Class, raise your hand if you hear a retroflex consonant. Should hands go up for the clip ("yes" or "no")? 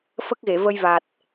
no